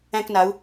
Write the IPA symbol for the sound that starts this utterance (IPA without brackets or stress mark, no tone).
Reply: æ̃